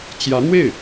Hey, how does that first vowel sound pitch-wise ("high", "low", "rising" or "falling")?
rising